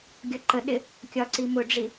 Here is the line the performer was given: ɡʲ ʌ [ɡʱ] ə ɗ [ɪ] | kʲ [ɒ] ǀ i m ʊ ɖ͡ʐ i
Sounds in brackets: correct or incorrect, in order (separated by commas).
incorrect, correct, correct